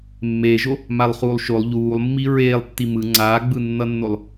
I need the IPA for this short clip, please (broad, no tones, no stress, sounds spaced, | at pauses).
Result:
mː eː ʒ o | m a lˠ χ uː lˠ ʃ o lˠ ʎ uː lˠ mː i ɹ eː lˠ tː i m ɯ ŋ͡ǀ aː ɡ͡b ɯ nː ʌ nː o lˠ